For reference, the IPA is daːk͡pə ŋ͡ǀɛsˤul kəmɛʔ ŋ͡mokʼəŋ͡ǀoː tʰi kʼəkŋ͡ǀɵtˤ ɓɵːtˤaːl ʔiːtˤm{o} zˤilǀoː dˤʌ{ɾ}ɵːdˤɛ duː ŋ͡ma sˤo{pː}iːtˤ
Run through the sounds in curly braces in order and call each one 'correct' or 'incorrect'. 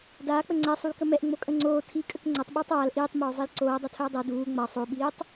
incorrect, incorrect, incorrect

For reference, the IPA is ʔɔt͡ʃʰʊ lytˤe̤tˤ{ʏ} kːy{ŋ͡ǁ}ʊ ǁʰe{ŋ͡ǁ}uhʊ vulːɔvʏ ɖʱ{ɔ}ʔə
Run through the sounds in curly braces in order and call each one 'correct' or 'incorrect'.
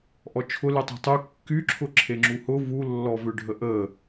incorrect, incorrect, correct, incorrect

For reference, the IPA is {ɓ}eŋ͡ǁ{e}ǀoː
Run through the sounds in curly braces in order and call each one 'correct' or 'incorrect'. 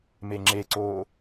incorrect, correct

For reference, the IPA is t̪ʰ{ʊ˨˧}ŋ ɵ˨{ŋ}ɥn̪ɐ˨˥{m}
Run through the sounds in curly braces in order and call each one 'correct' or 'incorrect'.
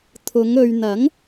correct, incorrect, incorrect

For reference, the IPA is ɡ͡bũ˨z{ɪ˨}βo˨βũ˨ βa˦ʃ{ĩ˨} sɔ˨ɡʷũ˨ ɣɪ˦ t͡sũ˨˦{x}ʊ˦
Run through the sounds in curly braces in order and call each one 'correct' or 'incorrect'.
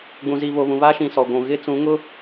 incorrect, correct, incorrect

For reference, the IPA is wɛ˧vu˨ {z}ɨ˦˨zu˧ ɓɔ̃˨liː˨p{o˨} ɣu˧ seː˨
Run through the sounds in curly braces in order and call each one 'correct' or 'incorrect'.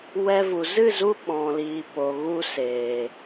correct, correct

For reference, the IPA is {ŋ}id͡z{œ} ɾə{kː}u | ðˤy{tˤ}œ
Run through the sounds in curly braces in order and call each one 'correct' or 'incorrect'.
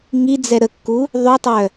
correct, incorrect, correct, correct

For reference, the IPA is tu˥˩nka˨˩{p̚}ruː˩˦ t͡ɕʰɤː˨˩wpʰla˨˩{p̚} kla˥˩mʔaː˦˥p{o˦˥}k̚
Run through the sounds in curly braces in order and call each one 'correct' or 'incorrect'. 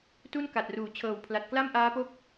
incorrect, incorrect, correct

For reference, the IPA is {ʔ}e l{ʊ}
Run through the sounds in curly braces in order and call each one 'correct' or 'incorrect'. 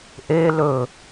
correct, incorrect

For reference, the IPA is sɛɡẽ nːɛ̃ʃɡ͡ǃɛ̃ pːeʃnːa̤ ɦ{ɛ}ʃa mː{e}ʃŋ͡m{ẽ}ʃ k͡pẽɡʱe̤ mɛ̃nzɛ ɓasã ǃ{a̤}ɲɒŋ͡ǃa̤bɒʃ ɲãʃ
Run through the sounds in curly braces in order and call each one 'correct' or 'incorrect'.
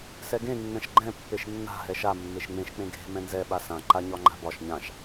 correct, correct, correct, incorrect

